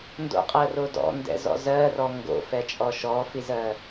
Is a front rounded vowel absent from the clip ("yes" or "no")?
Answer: yes